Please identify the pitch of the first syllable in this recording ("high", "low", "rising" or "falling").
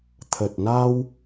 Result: low